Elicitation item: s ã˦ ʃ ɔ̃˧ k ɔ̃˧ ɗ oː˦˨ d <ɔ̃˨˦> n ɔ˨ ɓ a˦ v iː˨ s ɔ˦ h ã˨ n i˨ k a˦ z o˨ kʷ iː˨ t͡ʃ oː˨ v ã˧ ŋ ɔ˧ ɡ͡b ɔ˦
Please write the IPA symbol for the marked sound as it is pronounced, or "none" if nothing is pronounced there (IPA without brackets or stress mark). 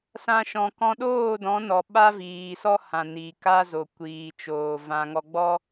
ɔ̃˨˦